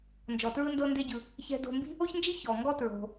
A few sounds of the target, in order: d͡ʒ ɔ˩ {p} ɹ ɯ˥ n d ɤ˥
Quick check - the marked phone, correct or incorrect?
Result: incorrect